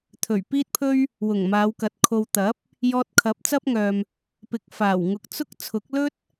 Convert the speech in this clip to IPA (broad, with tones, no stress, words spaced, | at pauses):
t̪ʰɵ˨˩ɥpiː˥t̚pʰɵ˥ɥ | wʊ˨˩ŋ maː˨˧wkɐ˨˥t̚ kʰo˨wt̪ɐ˨˥p̚ | jɔː˧t̚kʰɐ˨˥p̚ t͡sɐ˥p̚ŋœː˨m | pɪ˨k̚ faː˨˩w ŋʊ˨k̚t͡sʊ˥k̚ t͡sʰʊ˨˥k̚lɵ˥t̚